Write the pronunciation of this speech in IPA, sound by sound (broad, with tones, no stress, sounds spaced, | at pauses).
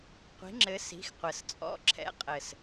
qʷ i̤˨˥ ŋ͡ǁ ɘ˨˥ s i̤˨˥ x qʷ ɘ˨˩ s t͡sʼ ɔ̰˧˥˧ ǁʰ ɛ̰˧˥˧ qʼ ɘ˨˩ s